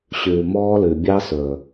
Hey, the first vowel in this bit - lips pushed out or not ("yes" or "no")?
yes